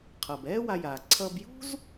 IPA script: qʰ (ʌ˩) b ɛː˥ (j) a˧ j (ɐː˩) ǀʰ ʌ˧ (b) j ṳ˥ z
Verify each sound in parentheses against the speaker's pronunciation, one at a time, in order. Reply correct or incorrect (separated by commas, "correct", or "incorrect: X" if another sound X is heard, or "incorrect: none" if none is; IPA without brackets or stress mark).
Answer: correct, incorrect: w, incorrect: aː˩, correct